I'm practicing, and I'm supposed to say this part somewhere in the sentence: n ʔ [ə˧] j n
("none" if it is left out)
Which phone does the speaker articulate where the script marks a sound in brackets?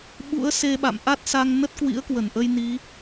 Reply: ə˧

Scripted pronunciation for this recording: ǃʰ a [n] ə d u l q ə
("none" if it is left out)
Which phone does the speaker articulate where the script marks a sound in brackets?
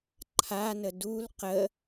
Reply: n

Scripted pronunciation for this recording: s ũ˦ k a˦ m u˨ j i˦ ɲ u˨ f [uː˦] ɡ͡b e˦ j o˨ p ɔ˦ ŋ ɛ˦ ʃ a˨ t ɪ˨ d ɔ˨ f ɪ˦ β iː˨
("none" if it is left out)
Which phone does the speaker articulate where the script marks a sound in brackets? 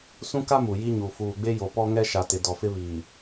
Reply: uː˨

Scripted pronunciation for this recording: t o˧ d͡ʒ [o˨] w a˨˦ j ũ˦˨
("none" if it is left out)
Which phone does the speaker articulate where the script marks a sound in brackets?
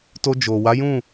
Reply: o˨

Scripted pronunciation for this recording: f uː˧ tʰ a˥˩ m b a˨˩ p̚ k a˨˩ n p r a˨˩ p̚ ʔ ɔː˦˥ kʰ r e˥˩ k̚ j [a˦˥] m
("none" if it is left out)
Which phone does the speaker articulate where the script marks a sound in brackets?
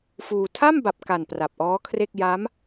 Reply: a˦˥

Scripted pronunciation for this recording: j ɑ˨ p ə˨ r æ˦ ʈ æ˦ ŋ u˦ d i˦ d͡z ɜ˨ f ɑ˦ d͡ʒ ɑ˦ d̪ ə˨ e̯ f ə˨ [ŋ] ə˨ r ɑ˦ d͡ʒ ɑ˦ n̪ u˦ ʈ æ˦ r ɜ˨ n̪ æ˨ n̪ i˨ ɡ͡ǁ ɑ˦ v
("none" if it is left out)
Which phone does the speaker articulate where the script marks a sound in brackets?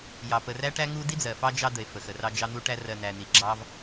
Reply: x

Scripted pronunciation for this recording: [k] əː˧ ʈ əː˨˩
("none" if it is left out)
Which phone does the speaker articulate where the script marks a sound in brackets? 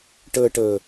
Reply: ʈ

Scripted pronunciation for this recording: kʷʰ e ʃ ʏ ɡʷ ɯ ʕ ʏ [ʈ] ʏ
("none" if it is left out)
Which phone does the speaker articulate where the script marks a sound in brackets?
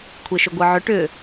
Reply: ʈ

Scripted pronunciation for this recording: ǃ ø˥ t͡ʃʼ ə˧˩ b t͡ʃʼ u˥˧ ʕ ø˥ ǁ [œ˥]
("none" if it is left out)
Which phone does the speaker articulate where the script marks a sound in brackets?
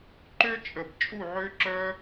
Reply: œ˥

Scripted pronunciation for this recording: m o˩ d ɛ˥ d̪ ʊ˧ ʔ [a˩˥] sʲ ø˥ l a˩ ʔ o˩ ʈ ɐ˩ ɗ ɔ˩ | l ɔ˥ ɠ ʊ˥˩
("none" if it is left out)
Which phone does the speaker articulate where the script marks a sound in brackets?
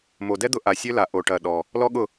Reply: a˩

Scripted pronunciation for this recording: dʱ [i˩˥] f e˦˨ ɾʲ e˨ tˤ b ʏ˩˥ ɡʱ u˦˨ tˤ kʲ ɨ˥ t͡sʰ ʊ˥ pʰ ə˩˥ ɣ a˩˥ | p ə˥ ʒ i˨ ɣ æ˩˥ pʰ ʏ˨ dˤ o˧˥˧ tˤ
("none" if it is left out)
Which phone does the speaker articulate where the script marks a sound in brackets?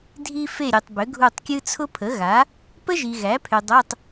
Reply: i˥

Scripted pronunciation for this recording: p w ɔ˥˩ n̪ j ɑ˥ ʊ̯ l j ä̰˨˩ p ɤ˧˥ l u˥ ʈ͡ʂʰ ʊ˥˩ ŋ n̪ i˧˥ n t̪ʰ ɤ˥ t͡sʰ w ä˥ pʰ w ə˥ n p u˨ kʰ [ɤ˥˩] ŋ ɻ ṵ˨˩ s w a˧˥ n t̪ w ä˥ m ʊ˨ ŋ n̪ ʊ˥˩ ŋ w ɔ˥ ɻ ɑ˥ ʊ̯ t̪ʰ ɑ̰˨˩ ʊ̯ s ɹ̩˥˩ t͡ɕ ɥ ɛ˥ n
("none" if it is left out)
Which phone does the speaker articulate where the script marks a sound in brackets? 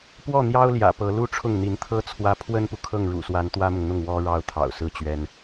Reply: ɤ˥˩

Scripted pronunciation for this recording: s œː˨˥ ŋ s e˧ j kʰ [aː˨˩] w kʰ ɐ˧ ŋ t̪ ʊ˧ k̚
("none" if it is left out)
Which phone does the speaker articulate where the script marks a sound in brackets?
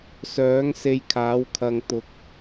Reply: aː˨˥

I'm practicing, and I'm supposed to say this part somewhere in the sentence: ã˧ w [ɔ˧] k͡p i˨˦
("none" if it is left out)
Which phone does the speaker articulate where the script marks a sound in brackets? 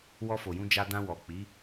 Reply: ɔ˨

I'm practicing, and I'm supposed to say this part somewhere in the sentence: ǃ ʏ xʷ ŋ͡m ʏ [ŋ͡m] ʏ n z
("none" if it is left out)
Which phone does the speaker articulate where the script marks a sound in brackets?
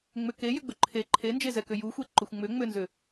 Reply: ŋ͡m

